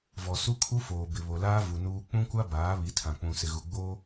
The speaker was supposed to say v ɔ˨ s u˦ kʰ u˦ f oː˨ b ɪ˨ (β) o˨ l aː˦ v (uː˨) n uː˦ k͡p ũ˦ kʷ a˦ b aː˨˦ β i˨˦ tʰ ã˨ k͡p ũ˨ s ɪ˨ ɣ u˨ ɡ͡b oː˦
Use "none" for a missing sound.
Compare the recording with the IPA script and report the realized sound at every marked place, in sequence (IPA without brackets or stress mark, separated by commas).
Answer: β, u˨